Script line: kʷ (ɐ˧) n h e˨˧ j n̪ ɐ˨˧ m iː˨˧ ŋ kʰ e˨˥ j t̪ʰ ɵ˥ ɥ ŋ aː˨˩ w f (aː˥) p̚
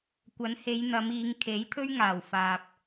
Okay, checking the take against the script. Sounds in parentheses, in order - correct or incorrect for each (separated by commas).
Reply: incorrect, incorrect